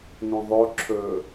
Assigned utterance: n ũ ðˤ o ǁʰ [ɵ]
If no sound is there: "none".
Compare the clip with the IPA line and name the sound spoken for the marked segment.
ɵ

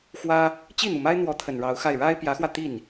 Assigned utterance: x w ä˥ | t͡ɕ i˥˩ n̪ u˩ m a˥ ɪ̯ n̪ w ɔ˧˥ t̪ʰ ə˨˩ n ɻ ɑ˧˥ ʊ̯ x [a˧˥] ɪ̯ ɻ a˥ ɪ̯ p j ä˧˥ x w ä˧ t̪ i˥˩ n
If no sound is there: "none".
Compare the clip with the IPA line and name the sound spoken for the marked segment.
a˥˩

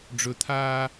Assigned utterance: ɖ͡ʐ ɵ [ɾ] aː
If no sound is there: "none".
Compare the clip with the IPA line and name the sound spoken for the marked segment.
t̪ʰ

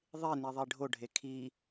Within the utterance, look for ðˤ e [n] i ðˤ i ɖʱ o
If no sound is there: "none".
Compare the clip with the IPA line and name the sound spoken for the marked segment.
n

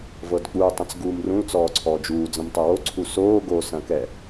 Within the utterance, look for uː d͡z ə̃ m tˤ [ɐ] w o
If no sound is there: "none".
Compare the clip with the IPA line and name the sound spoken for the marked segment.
ɐ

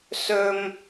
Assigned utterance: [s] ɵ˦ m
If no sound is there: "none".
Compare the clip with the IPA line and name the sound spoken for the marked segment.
s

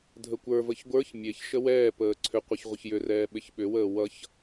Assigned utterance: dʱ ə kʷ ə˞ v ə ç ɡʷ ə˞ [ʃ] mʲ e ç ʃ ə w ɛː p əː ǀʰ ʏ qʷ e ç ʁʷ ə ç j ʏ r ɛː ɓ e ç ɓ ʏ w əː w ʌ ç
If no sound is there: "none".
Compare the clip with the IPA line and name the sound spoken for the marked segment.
ç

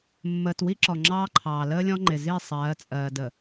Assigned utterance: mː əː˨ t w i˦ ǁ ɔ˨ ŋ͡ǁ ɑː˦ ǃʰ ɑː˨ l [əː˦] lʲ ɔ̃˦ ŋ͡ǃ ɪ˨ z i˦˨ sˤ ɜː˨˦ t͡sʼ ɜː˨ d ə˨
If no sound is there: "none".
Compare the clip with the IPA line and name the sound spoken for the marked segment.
əː˦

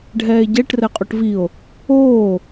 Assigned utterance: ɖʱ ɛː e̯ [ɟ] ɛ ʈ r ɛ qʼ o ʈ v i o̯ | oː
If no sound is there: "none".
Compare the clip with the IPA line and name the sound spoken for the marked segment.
ɟ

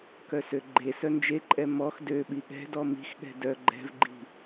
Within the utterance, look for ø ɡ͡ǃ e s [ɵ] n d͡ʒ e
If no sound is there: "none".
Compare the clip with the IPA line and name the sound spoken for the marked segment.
œ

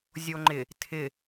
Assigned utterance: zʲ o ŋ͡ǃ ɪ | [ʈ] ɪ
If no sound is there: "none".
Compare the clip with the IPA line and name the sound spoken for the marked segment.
tʰ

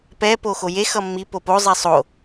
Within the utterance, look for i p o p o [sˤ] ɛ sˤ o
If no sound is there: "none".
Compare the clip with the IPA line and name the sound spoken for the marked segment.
zˤ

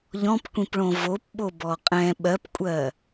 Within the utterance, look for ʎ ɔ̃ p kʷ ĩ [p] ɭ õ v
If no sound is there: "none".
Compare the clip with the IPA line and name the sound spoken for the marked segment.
p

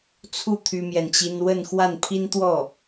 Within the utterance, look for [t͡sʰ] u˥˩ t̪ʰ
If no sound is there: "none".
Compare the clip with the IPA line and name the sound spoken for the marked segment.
t͡sʰ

